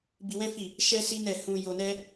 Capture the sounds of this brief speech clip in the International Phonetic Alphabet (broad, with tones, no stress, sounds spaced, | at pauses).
b i˧ w ɛ̃˦ f i˦˨ | ʃ ɛ˦ s i˦ n ɛ˦˨ h ũ˧ j o˧ n ɛ˦